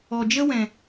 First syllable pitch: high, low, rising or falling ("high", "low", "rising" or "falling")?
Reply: low